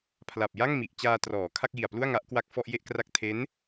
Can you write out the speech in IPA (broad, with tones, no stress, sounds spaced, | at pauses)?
pʰ l a˨˩ p̚ j a˥˩ ŋ m i˨˩ ʔ t͡ɕ aː˧ t r ɔː˩˦ kʰ a˥˩ k̚ j i˨˩ a̯ p l u˥˩ a̯ ŋ a˦˥ ʔ k w a˥˩ k̚ f ɔ˥˩ ʔ j e˥˩ ʔ k r a˥˩ k̚ tʰ e˦˥ n